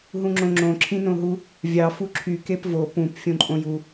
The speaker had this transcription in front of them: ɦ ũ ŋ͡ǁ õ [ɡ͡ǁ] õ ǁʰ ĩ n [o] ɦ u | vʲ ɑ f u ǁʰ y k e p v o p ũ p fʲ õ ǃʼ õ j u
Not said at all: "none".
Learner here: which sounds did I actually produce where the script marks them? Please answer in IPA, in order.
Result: ŋ͡ǁ, õ

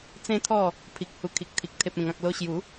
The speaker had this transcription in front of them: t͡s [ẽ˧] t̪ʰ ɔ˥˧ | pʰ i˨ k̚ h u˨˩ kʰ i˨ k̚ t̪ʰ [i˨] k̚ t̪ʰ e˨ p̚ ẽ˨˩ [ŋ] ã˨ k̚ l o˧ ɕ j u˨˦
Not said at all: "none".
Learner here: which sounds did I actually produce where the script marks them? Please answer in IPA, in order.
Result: ẽ˦, i˨, ŋ

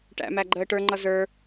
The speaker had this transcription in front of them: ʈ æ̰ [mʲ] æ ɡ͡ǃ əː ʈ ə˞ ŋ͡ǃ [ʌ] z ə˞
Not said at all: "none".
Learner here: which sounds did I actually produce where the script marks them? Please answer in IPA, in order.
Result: m, ʌ

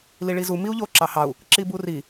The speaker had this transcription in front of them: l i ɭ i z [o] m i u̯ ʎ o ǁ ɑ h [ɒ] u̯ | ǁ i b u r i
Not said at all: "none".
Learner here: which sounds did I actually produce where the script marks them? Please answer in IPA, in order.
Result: u, ɑ

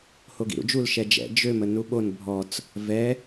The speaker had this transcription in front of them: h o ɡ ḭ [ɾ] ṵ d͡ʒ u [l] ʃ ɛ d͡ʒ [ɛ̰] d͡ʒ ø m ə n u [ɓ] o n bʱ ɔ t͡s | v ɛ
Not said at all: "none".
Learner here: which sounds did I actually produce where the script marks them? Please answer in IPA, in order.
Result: ɾ, l, ɛ̰, ɓ

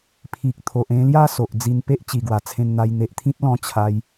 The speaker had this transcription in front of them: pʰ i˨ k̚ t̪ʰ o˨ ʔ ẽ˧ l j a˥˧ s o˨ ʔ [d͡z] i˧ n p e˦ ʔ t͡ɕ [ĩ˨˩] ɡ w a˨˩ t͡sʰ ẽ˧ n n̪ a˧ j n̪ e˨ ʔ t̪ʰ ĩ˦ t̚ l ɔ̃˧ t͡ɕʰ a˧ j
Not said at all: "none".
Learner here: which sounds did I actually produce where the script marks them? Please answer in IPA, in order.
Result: d͡z, i˨˩

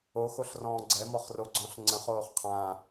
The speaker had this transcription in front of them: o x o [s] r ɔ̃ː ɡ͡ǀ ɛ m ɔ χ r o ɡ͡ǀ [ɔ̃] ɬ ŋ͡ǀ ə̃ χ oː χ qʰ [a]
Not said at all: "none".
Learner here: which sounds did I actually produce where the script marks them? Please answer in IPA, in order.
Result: ɬ, ɔ̃, ã

